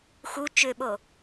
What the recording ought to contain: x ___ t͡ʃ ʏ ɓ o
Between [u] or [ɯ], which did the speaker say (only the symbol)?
u